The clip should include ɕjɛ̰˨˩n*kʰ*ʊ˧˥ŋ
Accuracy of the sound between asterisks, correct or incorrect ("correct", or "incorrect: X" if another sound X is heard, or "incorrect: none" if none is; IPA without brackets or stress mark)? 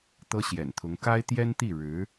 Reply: incorrect: t̪ʰ